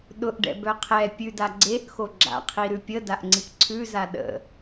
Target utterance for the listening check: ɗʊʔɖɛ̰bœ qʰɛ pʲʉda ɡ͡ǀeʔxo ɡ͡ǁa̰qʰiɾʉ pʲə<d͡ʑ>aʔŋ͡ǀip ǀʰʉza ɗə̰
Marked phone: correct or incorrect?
incorrect